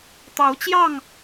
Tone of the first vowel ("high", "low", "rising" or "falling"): rising